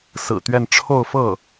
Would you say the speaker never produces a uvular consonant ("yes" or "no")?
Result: yes